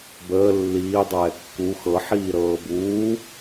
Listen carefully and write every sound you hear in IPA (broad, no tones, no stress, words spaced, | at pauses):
bəː lːiː dˤɛːkːu xɤ ħiːɾɤːbuː